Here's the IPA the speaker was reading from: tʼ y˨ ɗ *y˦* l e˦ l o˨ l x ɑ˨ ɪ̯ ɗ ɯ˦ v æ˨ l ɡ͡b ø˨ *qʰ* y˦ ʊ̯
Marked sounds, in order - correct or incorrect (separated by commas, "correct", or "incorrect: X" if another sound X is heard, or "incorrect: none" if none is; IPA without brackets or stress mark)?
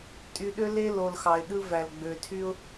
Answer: incorrect: ø˦, incorrect: tʰ